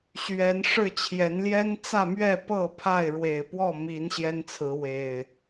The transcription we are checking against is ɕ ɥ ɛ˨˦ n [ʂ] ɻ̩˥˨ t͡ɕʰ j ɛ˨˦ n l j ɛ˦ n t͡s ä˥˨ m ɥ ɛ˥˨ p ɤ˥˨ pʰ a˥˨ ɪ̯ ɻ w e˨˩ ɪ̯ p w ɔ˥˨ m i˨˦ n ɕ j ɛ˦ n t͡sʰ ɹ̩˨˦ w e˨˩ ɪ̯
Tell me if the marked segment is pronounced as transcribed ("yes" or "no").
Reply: yes